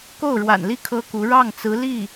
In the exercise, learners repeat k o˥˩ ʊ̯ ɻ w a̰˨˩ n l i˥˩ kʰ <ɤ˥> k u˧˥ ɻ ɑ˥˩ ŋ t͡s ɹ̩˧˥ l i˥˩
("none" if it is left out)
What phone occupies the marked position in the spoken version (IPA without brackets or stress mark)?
ɤ˥